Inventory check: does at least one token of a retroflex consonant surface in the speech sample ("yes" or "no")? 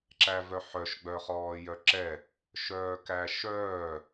no